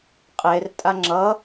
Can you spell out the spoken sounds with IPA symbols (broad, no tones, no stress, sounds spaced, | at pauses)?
qʼ e r tʼ a ŋ͡ǁ ʌ